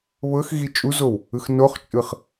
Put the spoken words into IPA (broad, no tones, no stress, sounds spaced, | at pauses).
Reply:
β ɤ x ɣ i t͡ʃʼ u z o w | ɯ x n o χ t͡ʃʼ ɯ χ